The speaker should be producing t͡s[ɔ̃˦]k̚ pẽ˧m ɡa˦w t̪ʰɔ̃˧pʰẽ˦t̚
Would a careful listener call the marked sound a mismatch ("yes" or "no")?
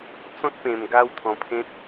no